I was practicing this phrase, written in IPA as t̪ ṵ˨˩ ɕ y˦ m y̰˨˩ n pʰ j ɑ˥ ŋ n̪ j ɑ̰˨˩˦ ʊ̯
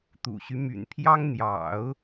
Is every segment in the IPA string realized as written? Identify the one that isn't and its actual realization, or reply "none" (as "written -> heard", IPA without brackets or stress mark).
none